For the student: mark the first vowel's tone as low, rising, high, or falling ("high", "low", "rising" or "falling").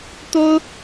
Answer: high